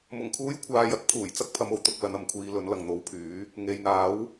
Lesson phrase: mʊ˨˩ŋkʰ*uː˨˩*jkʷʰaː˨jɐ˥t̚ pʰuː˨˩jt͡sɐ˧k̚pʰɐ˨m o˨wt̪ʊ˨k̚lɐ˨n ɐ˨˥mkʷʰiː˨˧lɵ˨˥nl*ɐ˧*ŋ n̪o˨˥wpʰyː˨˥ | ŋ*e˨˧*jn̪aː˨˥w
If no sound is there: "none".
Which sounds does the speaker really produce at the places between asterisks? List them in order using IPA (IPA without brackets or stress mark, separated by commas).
uː˨˥, ɐ˨, e˨